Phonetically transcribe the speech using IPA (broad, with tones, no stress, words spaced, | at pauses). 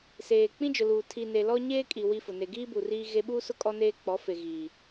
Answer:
seː˨ k͡pĩ˦d͡ʒʊ˨luː˨ tʰi˨ne˨ lɔ˦ɲeː˦kʼi˨ wi˦fʊ˨ ne˨ɡiː˦ bu˨riː˦ɣe˦ ɓu˦sʊ˦ kʼɔ˦neː˦k͡pɔ˨˦ fe˨ ɣiː˨